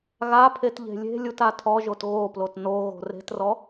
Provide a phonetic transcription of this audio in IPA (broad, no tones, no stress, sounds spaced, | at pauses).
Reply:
ɣ a pʰ e t ʎ e̤ lʲ e̤ lʲ u t a tʰ ɔ ʒ o t ɣ o p l o t n o ɣ o̤ r e̤ t r ɔ